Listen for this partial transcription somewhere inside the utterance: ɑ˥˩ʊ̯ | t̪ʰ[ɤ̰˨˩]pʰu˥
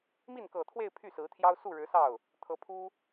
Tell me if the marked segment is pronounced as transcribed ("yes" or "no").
no